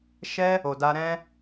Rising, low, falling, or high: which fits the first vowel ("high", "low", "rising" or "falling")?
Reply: high